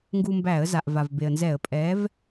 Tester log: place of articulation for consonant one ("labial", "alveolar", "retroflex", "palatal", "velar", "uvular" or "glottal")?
velar